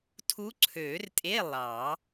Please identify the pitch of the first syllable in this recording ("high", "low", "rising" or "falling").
rising